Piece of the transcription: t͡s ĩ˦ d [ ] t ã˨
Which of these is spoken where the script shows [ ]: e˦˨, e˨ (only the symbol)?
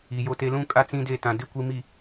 e˦˨